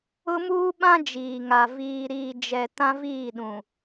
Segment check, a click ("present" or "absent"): absent